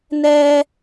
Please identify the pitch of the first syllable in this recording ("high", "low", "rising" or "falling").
high